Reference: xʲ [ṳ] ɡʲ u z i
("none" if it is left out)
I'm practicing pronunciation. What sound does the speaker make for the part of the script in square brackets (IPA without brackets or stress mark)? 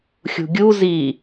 ṳ